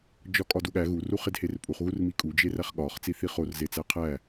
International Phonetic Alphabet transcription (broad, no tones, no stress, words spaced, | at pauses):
d͡ʒɒkʼɒduɠæ ɣu ruχedherpʼuχ ɣurmikʼu d͡ʒeræχɠɒχ t͡siθiχor zet͡sæqʰæ